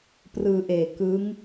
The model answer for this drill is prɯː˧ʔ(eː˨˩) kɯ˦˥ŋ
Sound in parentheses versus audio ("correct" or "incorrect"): correct